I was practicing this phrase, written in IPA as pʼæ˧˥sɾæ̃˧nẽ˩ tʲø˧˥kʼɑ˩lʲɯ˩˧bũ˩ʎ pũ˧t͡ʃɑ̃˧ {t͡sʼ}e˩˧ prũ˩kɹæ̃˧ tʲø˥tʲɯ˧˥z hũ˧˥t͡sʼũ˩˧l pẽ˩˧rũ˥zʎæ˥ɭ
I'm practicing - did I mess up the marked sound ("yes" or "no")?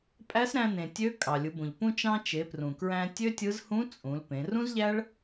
yes